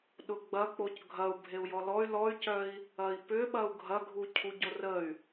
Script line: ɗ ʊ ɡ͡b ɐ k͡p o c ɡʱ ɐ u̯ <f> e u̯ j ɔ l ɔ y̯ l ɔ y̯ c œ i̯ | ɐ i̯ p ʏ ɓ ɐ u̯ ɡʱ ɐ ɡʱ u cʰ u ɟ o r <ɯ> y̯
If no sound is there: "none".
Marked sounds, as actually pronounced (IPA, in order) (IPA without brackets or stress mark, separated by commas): bʱ, ə